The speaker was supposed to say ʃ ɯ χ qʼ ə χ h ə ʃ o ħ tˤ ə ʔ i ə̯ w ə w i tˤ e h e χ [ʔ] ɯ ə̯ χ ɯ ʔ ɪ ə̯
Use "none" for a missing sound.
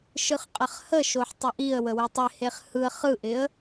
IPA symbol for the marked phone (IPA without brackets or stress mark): h